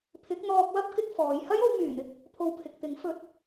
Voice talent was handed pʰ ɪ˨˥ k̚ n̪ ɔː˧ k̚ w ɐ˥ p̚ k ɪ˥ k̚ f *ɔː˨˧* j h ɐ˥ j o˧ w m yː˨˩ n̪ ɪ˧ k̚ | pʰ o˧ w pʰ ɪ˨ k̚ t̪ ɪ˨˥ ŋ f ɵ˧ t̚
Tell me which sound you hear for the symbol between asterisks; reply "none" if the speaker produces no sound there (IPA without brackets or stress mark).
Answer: ɔː˨˧